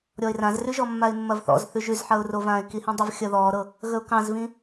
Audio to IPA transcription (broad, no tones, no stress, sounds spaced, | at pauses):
ɾʲ ɔ ɪ̯ r ã z r ʉ ʒ ɔ mː a ɪ̯ mː ɐ v θ ɔ̰ z θ ʉ ʒ ʉ z ħ ɐ ʊ̯ r o v ãː ɪ̯ k i h ĩ dˤ ə v xʲ ɐ ð ɔː ɾ ɤ | ɣ ə ʊ̯ k ɑ̃ z v ĩ